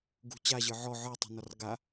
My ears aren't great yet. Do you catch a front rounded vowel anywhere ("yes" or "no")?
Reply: no